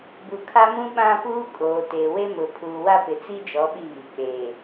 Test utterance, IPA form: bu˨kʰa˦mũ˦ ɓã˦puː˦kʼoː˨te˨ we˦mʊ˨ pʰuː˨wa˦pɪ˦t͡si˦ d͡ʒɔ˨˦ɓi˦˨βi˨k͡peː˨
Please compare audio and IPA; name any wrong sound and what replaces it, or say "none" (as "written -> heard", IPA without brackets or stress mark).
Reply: ɪ˦ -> ɪ˨